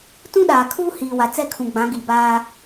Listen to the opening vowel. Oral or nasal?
nasal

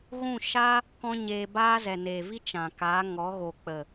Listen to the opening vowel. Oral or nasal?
nasal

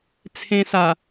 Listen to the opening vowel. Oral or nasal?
nasal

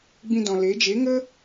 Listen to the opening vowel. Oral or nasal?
nasal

